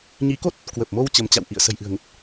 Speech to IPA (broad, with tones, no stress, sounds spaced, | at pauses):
ɲ i˨˦ k o˦˥ t̚ | k w ə˨˩ p̚ m o˧ w t͡ɕ ə˨˦ m t͡ɕ a̰˧˨ w ʔ ḭ˧˨ ə̯ s ə̤˨˩ j ʔ ɨ̤˨˩ ə̯ ŋ ə˨˩ t̚